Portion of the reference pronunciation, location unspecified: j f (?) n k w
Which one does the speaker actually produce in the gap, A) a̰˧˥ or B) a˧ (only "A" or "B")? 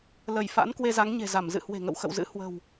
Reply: A